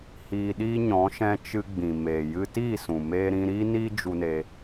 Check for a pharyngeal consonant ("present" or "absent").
absent